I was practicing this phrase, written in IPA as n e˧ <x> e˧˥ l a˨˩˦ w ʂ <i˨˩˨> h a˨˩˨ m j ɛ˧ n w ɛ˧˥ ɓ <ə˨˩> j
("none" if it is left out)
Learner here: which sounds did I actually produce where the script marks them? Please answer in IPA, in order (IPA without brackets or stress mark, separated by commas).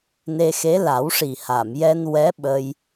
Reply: x, i˨˩, ə˧